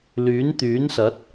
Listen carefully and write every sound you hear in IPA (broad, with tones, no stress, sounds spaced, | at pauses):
l yː˨˥ n t̪ yː˨˥ n s ɐ˨˥ t̚